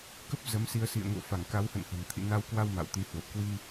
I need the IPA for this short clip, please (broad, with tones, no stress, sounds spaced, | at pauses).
k ə˦˥ p̚ z ə˨˦ m s i˧ ə̯ s ḭ˧˨ ə̯ ŋ o̰˧˨ f a˧˩ ŋ k a˨˦ w h ə̰˧˨ n h ə̤˨˩ n t̪ʰ ḭ˧˨ n a˧ w k w a˧ w m a̰˧˨ w t̪ i˨˦ h w ə˨˩ p̚ k w i˧